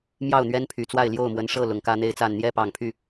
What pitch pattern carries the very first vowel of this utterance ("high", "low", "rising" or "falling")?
falling